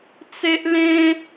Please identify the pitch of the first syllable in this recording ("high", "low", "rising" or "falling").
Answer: high